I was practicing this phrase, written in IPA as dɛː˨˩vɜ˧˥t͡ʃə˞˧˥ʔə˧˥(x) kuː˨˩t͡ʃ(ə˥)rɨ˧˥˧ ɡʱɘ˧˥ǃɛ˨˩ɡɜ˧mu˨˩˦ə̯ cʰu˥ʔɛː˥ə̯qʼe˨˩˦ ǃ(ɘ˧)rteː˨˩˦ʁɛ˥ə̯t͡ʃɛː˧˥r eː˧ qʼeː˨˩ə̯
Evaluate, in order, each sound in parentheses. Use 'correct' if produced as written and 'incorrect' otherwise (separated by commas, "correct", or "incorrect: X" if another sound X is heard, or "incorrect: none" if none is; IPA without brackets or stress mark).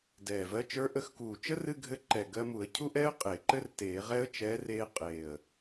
correct, correct, incorrect: ɘ˥